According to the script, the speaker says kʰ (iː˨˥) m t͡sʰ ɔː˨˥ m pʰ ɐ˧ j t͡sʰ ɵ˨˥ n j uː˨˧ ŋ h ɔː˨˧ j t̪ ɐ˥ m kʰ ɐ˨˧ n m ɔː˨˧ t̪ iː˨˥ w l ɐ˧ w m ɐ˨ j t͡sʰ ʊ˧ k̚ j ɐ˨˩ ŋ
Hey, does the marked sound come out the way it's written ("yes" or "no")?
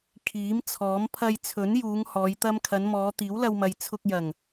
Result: yes